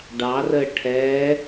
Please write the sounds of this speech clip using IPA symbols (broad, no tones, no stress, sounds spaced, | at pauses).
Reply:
ɖ ɑ r əː ʈʰ ɛ